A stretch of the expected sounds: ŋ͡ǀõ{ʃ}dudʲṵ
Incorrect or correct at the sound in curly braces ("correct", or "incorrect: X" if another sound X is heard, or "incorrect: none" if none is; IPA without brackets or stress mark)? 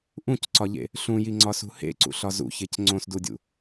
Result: incorrect: s